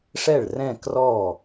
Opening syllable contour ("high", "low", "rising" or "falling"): falling